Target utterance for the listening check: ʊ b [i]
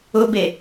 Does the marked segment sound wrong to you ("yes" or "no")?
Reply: yes